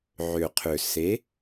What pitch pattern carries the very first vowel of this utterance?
low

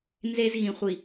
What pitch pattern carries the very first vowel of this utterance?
high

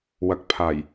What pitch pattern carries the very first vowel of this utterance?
low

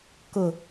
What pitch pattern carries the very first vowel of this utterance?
low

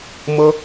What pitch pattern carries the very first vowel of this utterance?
high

